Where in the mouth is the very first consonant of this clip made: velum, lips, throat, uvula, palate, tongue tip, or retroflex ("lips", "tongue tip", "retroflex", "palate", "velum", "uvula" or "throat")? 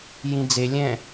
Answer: palate